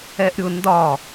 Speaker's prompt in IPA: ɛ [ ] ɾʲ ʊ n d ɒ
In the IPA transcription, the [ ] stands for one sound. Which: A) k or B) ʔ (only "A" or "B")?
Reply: B